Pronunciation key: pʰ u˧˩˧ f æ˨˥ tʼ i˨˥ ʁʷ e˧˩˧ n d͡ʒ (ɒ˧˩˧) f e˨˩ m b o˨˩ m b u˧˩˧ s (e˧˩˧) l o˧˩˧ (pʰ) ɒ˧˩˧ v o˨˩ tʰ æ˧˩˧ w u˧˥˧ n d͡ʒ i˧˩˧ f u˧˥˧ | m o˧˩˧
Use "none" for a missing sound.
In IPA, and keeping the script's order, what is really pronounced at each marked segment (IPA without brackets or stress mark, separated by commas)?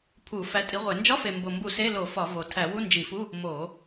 ɒ˧˥˧, e˧˥˧, f